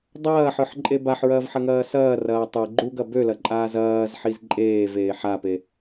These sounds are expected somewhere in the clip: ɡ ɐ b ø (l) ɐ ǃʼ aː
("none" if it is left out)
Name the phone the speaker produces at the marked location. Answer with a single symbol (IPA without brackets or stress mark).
l